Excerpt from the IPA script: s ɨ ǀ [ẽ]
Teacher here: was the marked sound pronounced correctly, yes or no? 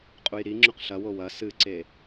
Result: no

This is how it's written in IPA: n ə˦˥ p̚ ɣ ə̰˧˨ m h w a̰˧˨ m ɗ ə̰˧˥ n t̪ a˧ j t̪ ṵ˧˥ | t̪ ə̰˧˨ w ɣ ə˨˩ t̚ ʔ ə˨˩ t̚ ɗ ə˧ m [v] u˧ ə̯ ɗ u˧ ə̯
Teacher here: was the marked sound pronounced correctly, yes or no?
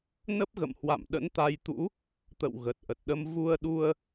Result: yes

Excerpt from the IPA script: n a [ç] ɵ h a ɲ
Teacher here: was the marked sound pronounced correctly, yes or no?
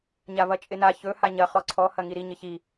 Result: yes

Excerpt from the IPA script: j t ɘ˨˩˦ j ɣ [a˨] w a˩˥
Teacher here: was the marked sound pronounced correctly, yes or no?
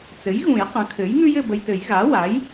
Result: no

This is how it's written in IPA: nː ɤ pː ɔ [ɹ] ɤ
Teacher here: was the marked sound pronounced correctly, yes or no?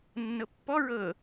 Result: yes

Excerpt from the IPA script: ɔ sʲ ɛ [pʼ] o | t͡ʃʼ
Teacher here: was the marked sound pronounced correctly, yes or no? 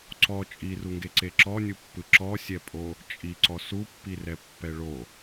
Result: yes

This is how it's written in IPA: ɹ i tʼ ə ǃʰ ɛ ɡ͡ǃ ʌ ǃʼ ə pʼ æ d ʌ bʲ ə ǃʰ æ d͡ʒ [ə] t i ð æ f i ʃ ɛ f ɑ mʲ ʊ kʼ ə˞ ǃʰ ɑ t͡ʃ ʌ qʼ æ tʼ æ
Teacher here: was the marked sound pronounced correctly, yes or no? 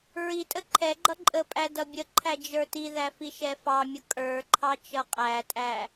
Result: no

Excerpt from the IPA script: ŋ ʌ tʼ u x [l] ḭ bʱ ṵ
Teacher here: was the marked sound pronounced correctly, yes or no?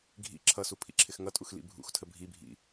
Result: yes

